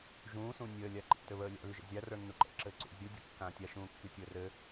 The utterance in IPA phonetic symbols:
ʒũːsũ nʲəːlʲa ǃḭtɘβəː lʲa̰βyʒə̰ zʲarə˞nːu ǃə̰ǁɘǀṵ zʲudʲəkːãː tʲaʃũːkːytʲəː rɘ

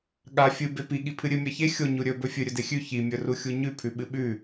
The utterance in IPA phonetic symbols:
ɠa fʲɨ bepiɠi pʰɨɾʲɨ mʲaçe xʲo ɲuɾʲɵ bɵfʲɨ ɾʲɵdexʲʉ çimʲɵru xʲuɲʉpʰʉ ɓɨɓʉ

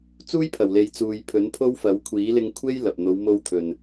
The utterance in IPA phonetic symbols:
t͡suː˥jpʰɐ˨˩wle˨jt͡suː˨j pʰɵ˨˥npʰo˥wfɐ˨˥w kʷʰiː˨˥lɪ˧ŋkʷʰe˥j lɐ˨p̚ n̪o˨˧wmo˧wt̪ʰɵ˨n

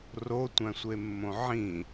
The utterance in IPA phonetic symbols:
rotʷæ̃sʷemːõ ʕĩ

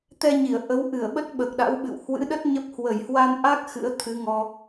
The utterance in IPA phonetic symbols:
t̪ɛ˧ɲi˧˩ə̯ʔə˨˦w ʔɨ˧˩ə̯ɓə˦˥t̚ ɓəː˨˩k̚ɗa̰˧˥wɓɨ̰˧˨w hwɨ̰˧˥ɗə˦˥t̚ ɲə˦˥p̚ hwə˧˩jhwa˧nʔa˦˥k̚ xɨ̰˧˥ə̯ t̪ʰɨ˨˦ŋɔ˧

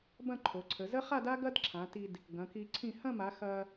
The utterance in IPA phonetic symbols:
bɐ̃˥˧ǃʰo˩˧ǀʰə˩˧ zə˥ χa˥˧da˥ ɡɐ˥dǁʰã˩˧ti˧d | ɡɐ̃˩˧ki˧ ǀʰĩ˧˩hɐ̃˥˧ma˩˧ xɐ˧

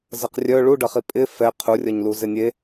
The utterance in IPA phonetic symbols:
zɐqrʲœ ɭuɖɐχi pʼɪ fɛ qʰurʲɐɲlu zɪnʲe

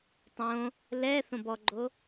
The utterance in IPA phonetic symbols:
tˤõ | lɛ θõbɔɡ͡ǃo

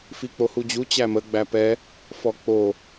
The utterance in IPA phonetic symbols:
fik͡pohud͡ʑu t͡ɕæmə ɡ͡bæpɛ | fɔk͡po

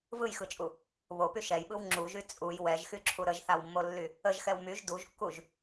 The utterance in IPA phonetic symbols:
vɯjxɯt͡ʃʼu | βopy ʃɛjɓɯw ŋ͡ǁuʒy t͡sʼuj wɛʒxyǁʰu ɾəʒθawmːolːy | əʒxɛw myʒ duʒkːuʒ

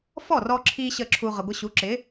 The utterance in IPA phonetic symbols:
fɔ˥˩rɔ˧ ǁʰiː˥ɕə˥˩ǁʰu˧ ʁə˩ɡʷɪ˧ɕu˩˥ǁɪ˩˥

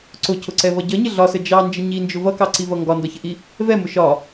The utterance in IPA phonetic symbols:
ǀʊcʰʊǀɛvʌ ɟəɲɪ ɮɒsə d͡ʒɑnd͡ʒə ɲind͡ʒʊ vʌkɑǀivʌ ŋɡɒndɒçəʔi | vɛmʊ ʃɒ

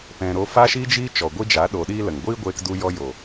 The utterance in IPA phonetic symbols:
pɛ̃˨ ɾo˧ fa˧ʃiː˧d͡ʒiː˧ t͡ʃɔ˨ɡʷi˦d͡ʒa˨˦ ɗo˨ ɗiː˦lə˨ŋ ɡʷiː˦ɡʷeː˧kdu˧jɔ˧ jo˨

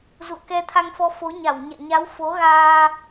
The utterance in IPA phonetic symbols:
zṵ˧˨ə̯kɛ˧ t̪ʰa˧ŋfɔ˧fo˨˦ ɲa˧˩wɲɛ̰˧˨ ɲa˨˦wfo˨˦ɣaː˧

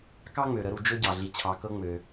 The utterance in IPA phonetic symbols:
kɑ˥ŋ͡mø˩ɾə˨ɾu˨ d͡ʒø˥ɟɑ˩ɮi˨t͡ɕʰɑ˨ kɤ˦ ŋ͡mø˩

